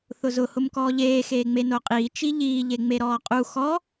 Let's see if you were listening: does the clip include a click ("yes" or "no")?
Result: no